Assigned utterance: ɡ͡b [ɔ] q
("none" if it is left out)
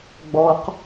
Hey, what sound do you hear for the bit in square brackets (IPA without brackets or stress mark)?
ɔ